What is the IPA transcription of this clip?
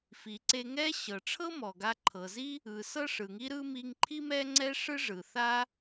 f i˩ ǀ e˧ ŋ ɛ˥ ɕ ɤ˩ ʈ͡ʂʰ ɤ˥ m ɔ˩ ɡ a˧ ǃʰ ɤ˩ z i˥ | ɯ˩ s ɤ˥ ʂ ɯ˩ ŋ i˥ ɾ ɯ˥ m i˧ ŋ ǃʰ i˥ m ɛ˥ ŋ͡ǀ ɛ˥ ʂ ɯ˥ ʐ ɯ˩ θ a˥

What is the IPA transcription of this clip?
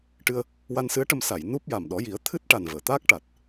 ʈ ɨ˧ ə̯ | w a˧ n s ɨ˧˥ ə̯ ʈ ə˧ m s a˨˩˨ j n u˦˥ p̚ j a˨˩ m ɗ ɔ˨˩˦ j i˨˩˦ ə̯ t̪ʰ ɨ˦˥ t̚ ʈ a˨˩ n v əː˨˩˨ t̪ aː˦˥ k̚ ʈ a˨˩ t̚

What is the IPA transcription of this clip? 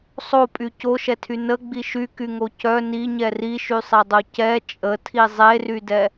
sˤ o pʼ y c o ʃ ɛ tʰ y n ə ɡ͡b i ʃ y k y ŋ o c œ n i ɲ ɛ r i ʃ y sˤ ɛ dˤ o c ɛ t͡ʃʼ ə tʰ i zˤ e r y d ɛ

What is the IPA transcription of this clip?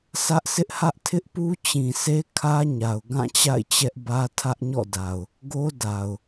sʰ ä˦ ʔ sʰ ɪ˦ ʔ h ä˦ ʔ tʰ ɪ˦ ʔ p u˦ t͡ɕ ĩ˨ sʰ e˦ kʰ ä˦ ɲ a˨ ʊ̯ ɡ ã˦˨ t͡ɕ a̰˦˨ ɪ̯ t͡ɕ ɛ˦ ʔ b ä˦ tʰ ä˦ ʔ ɲ ɔ̰˦˨ d a˨ ʊ̯ | ɡ o˦ d a˨ ʊ̯

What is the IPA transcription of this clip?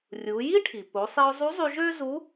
rʲ u˩˧ j i˥ ʈʰ i˩ p o˩˧ sˤ i˧ ʊ̯ zˤ u˧˥ zˤ y˧ ʒ ø˥ z u˧˥

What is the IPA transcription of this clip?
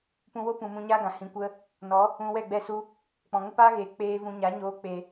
p ũ˧ w o˦ p ũ˨ m ũ˧ ɲ a˦ ɡ ã˨ h ĩ˨ kʷ ə˧ | n ɔ˨˦ | ũ˧ w ɛ˦˨ ɡ͡b ɛ˧ s u˧ | k͡p ɔ̃˨ ŋ ə˦ p aː˦ ɣ eː˨ k͡p eː˧ v ũ˧ ɲ a˨˦ ɲ oː˧ k͡p e˨

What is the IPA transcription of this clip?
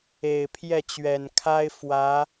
e˨˩ ɪ̯ pʰ j ɛ˥˩ t͡ɕ ɥ ɛ˨˩ n kʰ a˥ ɪ̯ f w ä˧˥

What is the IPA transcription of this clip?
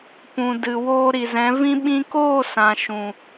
p ũ˨ d ɨ˨ w oː˧ ɾ i˨ z ɛ̃˨˦ v ĩ˦ ɓ ĩ˧ k oː˦˨ s ã˨ ʃ ũ˨

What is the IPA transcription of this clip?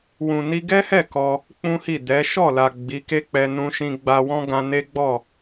w ũ˨ n i˧ ɡ ɛ˦ h ɛ˦˨ k ɔ˧ | k͡p ũ˦ h i˦˨ d ɛ˨˦ ʃ ɔ˦˨ l a˨ ɡ͡b i˨˦ k e˦ k͡p ɛ˧ n ũ˧ ʃ ĩ˧ ɡ͡b a˧ w ɔ̃˦ ɡ ã˧ n e˦ ɡ͡b ɔ˦˨

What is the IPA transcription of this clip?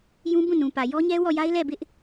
j ũ˦ b ũ˦˨ n ũ˨ p ä˨ j ɔ˦ ɲ ɛ˦ w ɔ˦˨ j a˦ ɪ̯ l ɛ˦˨ b ɪ˦ ʔ

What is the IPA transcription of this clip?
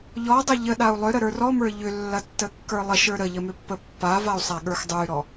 ʎ ɔ dˤ ɐ ʎ ə ɗ a u̯ lˠ ʏ ɾ ə ɾ ə˞ r ɔ m ə˞ ʎ ʏ lː ɐ tː ə kː ə˞ lˠ ə ʃ ə˞ ɾ ə ʎ ə m ʏ pː ə pː a v a u̯ sˤ a ɠ ə˞ x dˤ ə˞ y̯ ɾ ɔ

